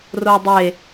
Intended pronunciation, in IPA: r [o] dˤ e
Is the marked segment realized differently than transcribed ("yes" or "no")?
no